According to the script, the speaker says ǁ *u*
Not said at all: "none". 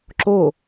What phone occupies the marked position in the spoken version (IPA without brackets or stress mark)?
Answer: o